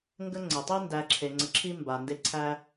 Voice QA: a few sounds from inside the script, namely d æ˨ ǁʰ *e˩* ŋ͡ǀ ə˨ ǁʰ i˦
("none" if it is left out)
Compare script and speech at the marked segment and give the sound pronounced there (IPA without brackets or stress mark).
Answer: e˩